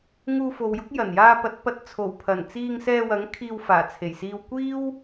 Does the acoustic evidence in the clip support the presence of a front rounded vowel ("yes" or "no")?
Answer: no